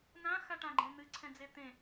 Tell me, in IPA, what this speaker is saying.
n ã x a ʈ ã ɡ͡ǃ ẽ n̪ ɨ ǀʰ ɛ̃ d͡z e t̪ ẽ

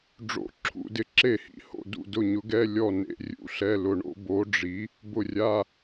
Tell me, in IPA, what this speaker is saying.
ɖ͡ʐ o̰˧˥˧ ǁʰ ṵ˧˥˧ d ɪ˨˥ ǁ e˦˨ h ḭ˨˥ h o̰˦˨ d ṵ˦˨ d ʊ˦˨ ɲ ʊ˨˥ ɡ ɛ˧˥˧ lʲ ɔ˦˨ n ḛ˨˥ rʲ ṵ˧˥˧ ɬ ɛ˧˥˧ l ʊ˦˨ ɳ o̰˨˥ b o˨˥ ɖ͡ʐ i˨˥ | b ʊ˦˨ rʲ a˧˥˧

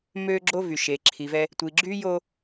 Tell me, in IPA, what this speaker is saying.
m ø˦ ɡ͡ǁ o˦ v y˨ ʃ e˨ ǁʰ i˨ v ɛ˦ | tʷ i˨ ɡ͡ǁ y˦ j o˦

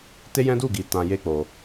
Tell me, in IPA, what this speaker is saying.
t e˦ j ɛ̃˦ d u˦˨ ɡ i˨ t ã˧ j e˦ k͡p o˧

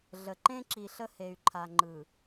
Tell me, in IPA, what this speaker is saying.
ɮ ə˨ ǃ ẽ˦ ǁ i˨ ɬ ə˦ h e˨ y̯ ǃʰ a˨ ŋ͡ǃ ɯ˨

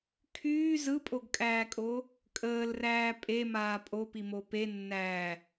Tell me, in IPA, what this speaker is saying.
kʰ yː z ɯ pʼ o ɡ kʼ æː kʼ o | kʼ əː l r æː pʼ e m aː pʼ o p i m o p e nː æː

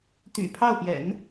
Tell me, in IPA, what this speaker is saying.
t̪ y̰˨˩ pʰ ɑ˥˩ ʊ̯ p j ɛ̰˨˩˦ n

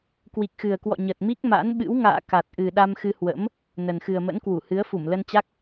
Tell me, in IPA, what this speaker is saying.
k w i˨˩ k̚ x ɨ˨˩ ə̯ k w ɔ̰˧˨ ɲ ə˨˩ t̚ m i˦˥ k̚ m a̰˧˥ n ɓ ɨ̰˧˥ w ŋ a̰ː˧˨ k a˨˩ t̚ ʔ ɨ˨˩ ɗ a˧ m x ɨ˧ h w ə̰˧˥ m | n ə˨˩ n x ɨ˨˩ ə̯ m ə̰˧˥ n k w u˧˩ h ɨ˨˦ ə̯ f u˧˩ m l ə˧ n t͡ɕ a˦˥ k̚

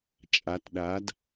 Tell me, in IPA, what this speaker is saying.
t͡ʃʼ a˩˧ t ɗ a˩˧ d

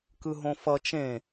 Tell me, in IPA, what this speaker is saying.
k ɯ ɦ õ f ʌ t͡ʃ ẽ

